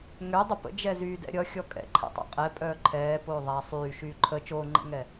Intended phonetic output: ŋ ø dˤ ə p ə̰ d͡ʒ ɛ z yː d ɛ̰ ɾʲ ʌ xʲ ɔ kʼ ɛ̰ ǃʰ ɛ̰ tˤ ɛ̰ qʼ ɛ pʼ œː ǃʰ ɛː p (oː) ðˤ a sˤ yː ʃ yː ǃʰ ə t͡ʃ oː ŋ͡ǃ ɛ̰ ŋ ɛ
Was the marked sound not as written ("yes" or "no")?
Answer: no